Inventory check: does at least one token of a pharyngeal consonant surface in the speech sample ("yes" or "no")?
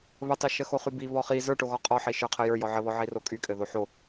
yes